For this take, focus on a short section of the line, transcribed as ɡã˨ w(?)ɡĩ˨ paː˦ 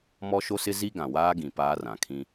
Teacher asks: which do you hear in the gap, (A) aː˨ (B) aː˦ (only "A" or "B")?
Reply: B